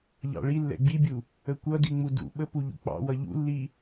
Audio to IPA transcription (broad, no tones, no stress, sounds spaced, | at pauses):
ʎ ɑ̰ ɭ i lː ɛ̰ ɡ͡b i bʲ u | ə kʷ ʌ d i ŋ͡m u d ṵ ɓ ə p u ʎ ṵ k͡p ɑ̰ w ʌ ʎ ṵ lː i